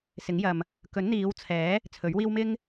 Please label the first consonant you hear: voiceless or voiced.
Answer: voiceless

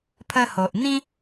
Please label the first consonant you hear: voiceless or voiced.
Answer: voiceless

